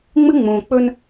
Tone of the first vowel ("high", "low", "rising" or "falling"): high